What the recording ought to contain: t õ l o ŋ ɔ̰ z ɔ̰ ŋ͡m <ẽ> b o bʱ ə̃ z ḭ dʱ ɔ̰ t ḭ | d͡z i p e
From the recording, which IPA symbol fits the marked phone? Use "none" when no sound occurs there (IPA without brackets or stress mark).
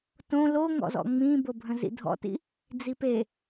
ĩ